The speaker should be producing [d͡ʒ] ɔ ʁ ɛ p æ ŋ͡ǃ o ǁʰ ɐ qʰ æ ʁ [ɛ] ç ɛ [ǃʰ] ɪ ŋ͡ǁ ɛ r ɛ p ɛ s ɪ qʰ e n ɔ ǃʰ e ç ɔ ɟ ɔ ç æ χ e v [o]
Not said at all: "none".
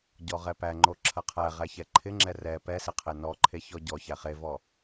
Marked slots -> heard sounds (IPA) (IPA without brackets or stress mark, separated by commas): ɟ, æ, ǃʰ, ɔ